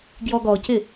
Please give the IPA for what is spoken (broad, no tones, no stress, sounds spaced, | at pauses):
ɡ j ɔ ɡ ɔ c ɪ